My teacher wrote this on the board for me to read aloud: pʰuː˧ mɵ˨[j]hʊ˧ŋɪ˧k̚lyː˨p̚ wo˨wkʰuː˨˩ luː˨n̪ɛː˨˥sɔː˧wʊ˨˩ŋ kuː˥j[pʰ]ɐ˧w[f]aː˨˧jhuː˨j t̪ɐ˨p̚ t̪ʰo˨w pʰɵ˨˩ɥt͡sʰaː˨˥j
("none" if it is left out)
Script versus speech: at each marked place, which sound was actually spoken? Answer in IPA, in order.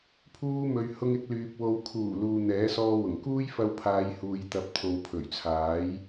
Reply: ɥ, f, pʰ

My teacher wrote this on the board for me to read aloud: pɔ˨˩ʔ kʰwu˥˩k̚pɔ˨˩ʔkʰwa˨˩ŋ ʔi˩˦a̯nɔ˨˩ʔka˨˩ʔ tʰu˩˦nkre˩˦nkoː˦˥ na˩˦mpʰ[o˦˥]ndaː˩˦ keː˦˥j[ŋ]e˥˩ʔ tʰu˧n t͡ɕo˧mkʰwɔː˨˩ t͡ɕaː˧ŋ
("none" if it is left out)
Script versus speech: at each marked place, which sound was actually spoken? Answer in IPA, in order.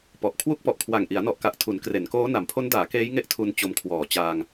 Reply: o˦˥, ŋ

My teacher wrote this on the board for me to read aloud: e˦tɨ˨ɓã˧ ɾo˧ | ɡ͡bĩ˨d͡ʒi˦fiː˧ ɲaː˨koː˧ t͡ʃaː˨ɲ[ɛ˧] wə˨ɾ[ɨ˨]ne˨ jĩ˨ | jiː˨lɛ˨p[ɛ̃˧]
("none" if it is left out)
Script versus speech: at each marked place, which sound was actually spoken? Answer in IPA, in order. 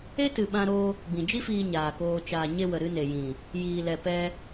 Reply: e˧, ɨ˧, ɛ˧

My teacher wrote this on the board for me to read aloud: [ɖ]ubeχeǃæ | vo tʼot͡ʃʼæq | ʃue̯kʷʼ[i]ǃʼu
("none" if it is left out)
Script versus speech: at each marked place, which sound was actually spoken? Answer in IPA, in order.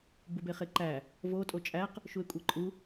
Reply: b, e

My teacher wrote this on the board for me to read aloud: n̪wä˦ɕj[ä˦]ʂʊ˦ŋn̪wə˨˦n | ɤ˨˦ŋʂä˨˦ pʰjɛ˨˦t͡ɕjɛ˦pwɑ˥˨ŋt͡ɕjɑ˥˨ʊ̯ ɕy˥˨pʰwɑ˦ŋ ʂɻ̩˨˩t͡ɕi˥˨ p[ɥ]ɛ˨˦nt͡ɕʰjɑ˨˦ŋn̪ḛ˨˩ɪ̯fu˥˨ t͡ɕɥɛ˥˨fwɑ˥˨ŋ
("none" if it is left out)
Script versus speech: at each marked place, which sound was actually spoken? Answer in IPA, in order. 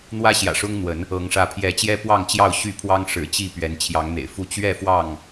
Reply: ä̰˨˩, ɥ

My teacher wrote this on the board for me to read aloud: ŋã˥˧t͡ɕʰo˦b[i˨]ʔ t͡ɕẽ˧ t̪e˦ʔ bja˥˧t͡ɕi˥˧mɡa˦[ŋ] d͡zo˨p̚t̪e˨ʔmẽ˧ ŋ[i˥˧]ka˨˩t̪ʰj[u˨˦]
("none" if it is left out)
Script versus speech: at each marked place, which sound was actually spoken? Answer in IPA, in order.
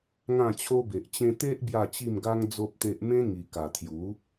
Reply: e˨, ŋ, i˨˩, u˨˦

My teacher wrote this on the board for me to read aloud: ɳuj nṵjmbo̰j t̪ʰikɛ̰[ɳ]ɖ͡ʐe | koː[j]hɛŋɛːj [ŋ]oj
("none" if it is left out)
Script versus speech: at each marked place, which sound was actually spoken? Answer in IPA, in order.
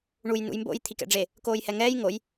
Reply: none, j, ŋ

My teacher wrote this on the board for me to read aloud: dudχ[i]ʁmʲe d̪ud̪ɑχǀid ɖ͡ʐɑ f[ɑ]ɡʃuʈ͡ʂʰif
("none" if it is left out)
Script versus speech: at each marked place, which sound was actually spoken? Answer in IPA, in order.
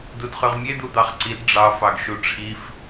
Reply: y, ɑ

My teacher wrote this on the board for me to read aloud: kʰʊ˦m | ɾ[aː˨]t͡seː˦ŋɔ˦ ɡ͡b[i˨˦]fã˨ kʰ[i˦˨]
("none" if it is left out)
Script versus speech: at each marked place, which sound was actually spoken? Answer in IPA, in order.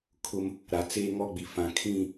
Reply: a˨, i˨, ĩ˦˨

